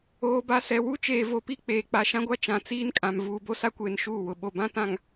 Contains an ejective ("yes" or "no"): yes